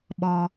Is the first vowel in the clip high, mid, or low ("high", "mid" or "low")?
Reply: mid